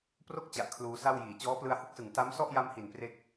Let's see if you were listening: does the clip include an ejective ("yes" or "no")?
no